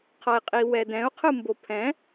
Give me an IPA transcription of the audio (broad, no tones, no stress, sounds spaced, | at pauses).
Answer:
qʰ ʌ i̯ qʼ i w ɛ d ɛ̃ u̯ qʰ ɯ m b o pʰ ɛ̃